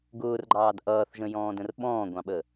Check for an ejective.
absent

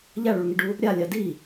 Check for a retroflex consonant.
present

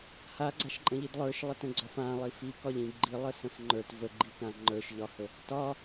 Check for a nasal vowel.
present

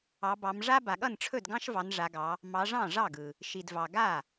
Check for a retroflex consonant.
present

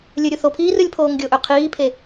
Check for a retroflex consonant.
absent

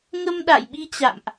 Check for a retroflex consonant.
absent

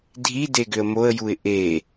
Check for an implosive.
absent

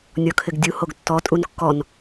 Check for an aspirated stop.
present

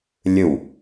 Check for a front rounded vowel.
absent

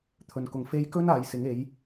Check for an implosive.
absent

